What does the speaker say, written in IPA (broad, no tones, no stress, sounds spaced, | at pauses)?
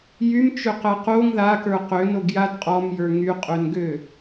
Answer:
j y m t͡ʃ ø q ɛ q o ŋ ð a k ə˞ q ø n o ɡ j a d qʼ ɔ m j ə˞ ŋ y qʼ ø n ɡ ø